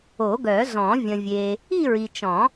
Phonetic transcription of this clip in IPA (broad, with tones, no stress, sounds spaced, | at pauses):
o˨˩˦ ɡ œ˨˩˦ z ɔ̃˨˩˦ vʲ ə̃˨ vʲ e˨ | i˥˧ ɹ i˨ t͡ʃ ɔ̃˨˩˦